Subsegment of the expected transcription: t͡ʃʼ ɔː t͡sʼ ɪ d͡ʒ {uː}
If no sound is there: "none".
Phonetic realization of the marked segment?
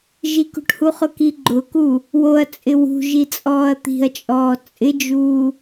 uː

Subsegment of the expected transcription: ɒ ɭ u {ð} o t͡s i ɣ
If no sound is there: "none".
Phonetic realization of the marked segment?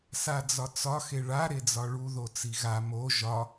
ð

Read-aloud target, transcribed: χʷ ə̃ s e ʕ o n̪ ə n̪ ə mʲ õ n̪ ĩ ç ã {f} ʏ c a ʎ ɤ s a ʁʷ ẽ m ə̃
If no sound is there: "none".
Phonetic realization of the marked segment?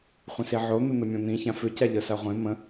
f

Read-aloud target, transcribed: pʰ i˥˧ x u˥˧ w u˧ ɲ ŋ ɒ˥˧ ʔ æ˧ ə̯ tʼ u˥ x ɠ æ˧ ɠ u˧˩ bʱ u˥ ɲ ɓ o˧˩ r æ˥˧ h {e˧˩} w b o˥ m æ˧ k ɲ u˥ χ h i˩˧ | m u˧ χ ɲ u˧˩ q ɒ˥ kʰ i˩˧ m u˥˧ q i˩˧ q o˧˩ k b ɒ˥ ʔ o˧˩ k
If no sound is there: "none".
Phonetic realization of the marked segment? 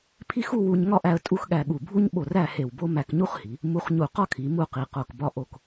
e˧˩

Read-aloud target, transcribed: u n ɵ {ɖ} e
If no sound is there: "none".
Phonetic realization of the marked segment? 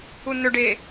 ɖ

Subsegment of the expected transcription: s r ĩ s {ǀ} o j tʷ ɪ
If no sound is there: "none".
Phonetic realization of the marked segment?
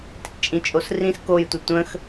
k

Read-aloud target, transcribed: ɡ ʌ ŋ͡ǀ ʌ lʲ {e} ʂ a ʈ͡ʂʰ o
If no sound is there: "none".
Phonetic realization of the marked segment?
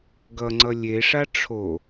e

